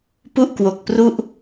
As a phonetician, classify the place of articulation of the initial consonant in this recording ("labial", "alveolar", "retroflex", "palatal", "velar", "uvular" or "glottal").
labial